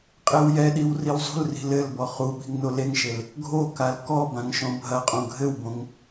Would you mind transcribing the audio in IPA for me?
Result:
qʼ e w j ɛ ɗ i w r i w zˤ ṳ l r i̤ l ɘ l b ɔ χ u ɓ i̤ ŋ n o l e ŋ ʃ e l | ɡʱ o k a l k ɔ b ã ŋ ʃ õ bʱ ɐ qʼ õ ɡʱ ɘ w b õ ŋ

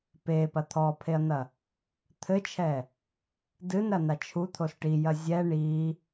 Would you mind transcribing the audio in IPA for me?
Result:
p e p ɐ t̪ʰ ɔ pʰ e ɐ̯ n̪ ɐ | t̪ʰ ɘ t͡ʃʰ ɛ | d ɨ n ɾ ɐ n a t͡ʃʰ u t̪ʰ o s ʈ i j ɐ zʲ ɛ ɳ i

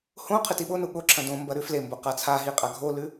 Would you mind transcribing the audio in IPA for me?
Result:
h õ qʰ ɨ t i ɓ o n u ɠ o ǁʰ ɐ̃ d õ m b ɐ ɾ ʉ f l e m b o q a t͡sʰ a ɦ i qʼ a ɡʱ o l ʉ

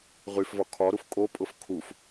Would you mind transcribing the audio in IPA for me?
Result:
ʁ y f v ɒ kʰ ɒ ɾ u f kʼ o pʼ ʊ f kʰ u f

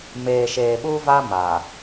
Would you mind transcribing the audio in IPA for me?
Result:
m eː˨ ʃ eː˨ ɓ uː˦ v a˦ m a˨

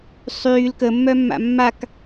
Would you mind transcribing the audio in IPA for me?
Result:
sˤ yː l k ə mː œ mː a̰ mː a k

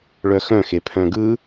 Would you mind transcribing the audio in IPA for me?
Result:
ɭ œ x œ̃ x e pʰ œ̃ ɡ ɯ

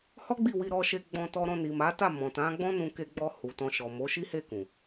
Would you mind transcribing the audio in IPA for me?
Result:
h ɔ˦ ɡ͡b i˦˨ w i˧ ɾ ɔ˧ ʃ e˧ ɡ͡b ɔ̃˧ t ɔ˧ ɾ ɔ̃˧ n i˨ m a˨˦ t a˦˨ m ɔ̃˨ t ã˨˦ ɡ͡b ɔ̃˦ n ũ˧ k e˧ ɡ͡b ɔ˧ h u˨ t ɔ̃˧ ʃ ɔ˨ m o˨˦ ʃ i˦ h e˦˨ k ũ˨

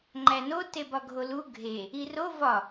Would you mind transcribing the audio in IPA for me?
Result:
ŋ͡ǃ æ n o t e b ɒ ɡʱ o l u ɡʱ e | i r o v ɒ

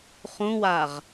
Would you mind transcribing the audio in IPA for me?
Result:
χ ũ w a ʁ

